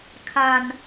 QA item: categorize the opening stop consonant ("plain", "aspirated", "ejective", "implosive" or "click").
aspirated